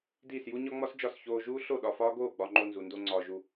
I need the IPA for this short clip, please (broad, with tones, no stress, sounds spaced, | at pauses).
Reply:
d iː˦˨ s j u˦ ɲ ɒ˦ ŋ͡m ɒ˦ s d͡ʒ ɒ˦˨ s ç oː˧ ʒ uː˦ ɬ o˦˨ ɗ ɒ˧ f ɒː˦ ɡ oː˦˨ ɡ͡b ɒ˧ ŋ͡ǃ o˧ n z u˨ n d o˧ ŋ͡ǀ ɒː˨ ʒ u˨